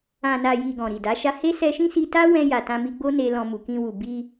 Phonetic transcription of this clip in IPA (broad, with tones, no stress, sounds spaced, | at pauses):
ã˨ n a˨ j i˨ ɡ ɔ̃˨ ɾ i˨ d a˨˦ ʃ a˦ h e˦ s ɛ˧ ʃ ĩ˦ s i˧ t a˦ w ɛ̃˧ j a˨ t ã˧ m i˧ ɡ͡b o˦ n e˧ l ɔ̃˧ m u˨ k ĩ˧ w u˨ b i˧